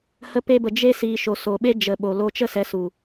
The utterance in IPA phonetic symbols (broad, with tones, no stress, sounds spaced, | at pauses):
h ə˧ p e˧ b ə˨ d͡ʒ e˧ s iː˨ ʃ o˨ s o˨ ɓ e˦ d͡ʒ ə˨ ɓ o˨ l o˧ t͡ʃ ə˦˨ s ɛ˨˦ s u˨